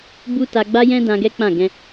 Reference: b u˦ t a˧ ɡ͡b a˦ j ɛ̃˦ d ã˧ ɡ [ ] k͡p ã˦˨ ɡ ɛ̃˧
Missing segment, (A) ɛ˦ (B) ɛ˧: A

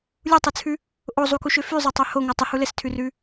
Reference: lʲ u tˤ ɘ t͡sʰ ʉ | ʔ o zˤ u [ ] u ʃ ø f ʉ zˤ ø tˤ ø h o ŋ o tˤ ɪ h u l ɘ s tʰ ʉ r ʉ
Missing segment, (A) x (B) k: B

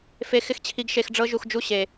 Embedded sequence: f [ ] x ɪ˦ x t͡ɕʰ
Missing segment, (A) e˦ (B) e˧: B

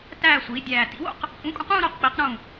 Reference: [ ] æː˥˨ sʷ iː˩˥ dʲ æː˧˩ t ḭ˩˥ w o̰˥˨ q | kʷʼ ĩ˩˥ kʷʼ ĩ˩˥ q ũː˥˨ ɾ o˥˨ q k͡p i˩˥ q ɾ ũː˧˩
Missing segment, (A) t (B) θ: A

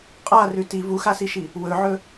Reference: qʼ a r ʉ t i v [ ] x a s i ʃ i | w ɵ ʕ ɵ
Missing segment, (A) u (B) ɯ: A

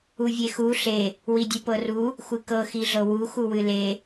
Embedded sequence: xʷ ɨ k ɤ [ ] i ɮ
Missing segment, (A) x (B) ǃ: A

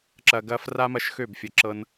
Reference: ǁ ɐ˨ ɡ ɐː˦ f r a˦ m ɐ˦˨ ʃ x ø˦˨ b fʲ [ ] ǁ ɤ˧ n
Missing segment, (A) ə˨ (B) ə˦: A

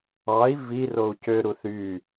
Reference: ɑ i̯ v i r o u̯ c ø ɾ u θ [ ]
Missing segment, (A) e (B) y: B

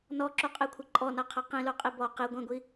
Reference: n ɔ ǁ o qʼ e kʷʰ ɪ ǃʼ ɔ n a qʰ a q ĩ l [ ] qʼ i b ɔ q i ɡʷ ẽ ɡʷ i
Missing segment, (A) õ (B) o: B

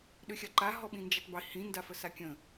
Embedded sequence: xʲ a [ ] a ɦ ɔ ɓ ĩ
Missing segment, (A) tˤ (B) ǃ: B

